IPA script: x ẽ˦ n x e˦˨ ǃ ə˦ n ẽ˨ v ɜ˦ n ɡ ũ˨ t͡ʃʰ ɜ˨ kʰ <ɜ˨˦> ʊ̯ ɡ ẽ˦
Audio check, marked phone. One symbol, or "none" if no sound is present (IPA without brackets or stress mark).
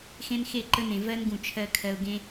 ɜ˨